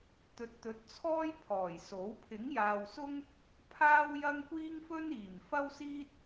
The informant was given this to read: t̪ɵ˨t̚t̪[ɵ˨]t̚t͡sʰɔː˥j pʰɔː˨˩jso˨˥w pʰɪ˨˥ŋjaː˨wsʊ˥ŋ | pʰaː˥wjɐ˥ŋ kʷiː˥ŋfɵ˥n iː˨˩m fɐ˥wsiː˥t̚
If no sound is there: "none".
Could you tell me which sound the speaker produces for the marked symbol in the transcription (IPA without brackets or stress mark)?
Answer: ɵ˨˥